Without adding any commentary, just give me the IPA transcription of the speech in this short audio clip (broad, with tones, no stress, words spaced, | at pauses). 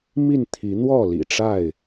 mi˥˨n t̪ʰi˨˦n̪wɔ˥˨lḭ˨˩ʈ͡ʂa˥˨ɪ̯